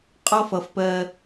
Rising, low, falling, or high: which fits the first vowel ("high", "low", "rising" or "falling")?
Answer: high